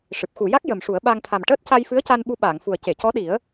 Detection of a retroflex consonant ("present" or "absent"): present